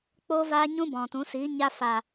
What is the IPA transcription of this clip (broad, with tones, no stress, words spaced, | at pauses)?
k͡poː˦vaː˦ ɲũ˦bɔ̃˨tũ˨˦siː˨˦ ɲa˧fa˨